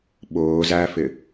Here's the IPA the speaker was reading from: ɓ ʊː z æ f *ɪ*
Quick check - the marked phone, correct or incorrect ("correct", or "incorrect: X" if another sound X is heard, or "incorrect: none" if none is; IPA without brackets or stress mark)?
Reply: correct